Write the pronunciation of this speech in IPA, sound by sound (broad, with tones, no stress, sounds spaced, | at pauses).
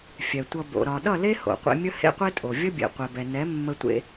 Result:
fʲ ɛ˨ tʷ ʌ˧ b o̰˨ ɾ ɒ˨ ɗ ʌ˦˨ l e˦ h o̰˨ qʷ ḛ˧ mʲ ə˦ h ḛ˦ qʷ e˦ tʼ o˨ vʲ ə˦ bʲ ḛ˨ qʷ ɛ˨ b ɛ˨ n ɛ˨˦ mː ə˧ tʷ ḛ˧